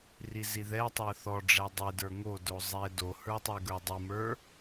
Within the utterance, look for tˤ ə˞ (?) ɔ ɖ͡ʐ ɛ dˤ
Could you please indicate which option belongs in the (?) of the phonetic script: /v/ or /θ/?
θ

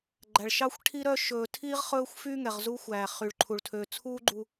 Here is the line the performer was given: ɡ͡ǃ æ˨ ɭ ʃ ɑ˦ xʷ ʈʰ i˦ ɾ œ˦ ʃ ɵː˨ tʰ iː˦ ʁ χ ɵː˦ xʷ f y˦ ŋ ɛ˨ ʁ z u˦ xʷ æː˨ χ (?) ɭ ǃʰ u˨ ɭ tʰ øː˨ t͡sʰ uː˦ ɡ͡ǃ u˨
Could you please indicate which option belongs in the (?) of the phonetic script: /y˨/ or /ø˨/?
y˨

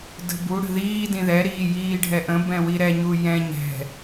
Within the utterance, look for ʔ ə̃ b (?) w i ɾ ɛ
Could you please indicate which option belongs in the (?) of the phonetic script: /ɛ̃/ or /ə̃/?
ɛ̃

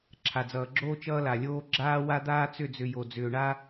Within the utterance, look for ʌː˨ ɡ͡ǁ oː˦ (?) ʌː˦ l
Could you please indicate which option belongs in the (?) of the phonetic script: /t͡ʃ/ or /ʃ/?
t͡ʃ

